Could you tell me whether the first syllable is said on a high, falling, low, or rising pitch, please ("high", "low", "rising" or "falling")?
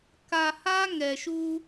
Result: low